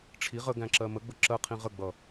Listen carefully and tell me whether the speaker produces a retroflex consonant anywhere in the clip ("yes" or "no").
yes